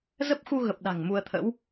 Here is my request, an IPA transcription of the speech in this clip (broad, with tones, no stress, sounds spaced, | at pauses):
z ə˦˥ p̚ x u˧ ɣ ə˨˩ p̚ ɗ a̤˨˩ ŋ m u˧ ə̯ t̪ʰ ə̰˧˥ w